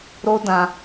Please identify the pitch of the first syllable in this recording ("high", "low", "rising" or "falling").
high